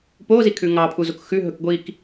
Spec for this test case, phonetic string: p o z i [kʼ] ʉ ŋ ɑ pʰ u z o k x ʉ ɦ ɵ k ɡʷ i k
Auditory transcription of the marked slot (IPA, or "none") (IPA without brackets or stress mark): kʰ